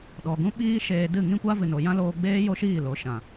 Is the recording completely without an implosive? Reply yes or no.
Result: no